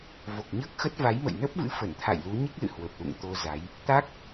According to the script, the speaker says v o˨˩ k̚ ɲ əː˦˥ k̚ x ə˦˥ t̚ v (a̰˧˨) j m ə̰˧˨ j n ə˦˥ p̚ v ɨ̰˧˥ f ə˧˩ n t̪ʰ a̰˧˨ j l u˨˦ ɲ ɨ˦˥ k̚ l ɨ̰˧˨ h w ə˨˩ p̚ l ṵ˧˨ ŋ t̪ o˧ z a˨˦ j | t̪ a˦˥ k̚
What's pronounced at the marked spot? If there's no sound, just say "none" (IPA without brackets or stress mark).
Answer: a˨˦